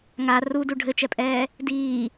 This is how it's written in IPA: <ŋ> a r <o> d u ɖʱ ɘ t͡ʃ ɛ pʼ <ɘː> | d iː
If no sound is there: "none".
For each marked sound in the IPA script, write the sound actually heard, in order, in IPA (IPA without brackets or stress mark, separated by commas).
ŋ, u, ɛː